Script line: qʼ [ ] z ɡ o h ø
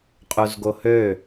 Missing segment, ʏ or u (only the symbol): u